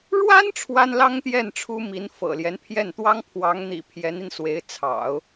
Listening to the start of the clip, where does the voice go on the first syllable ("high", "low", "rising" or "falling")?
high